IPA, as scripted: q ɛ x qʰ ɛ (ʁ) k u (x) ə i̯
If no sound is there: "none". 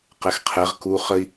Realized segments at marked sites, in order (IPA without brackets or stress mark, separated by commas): ʁ, χ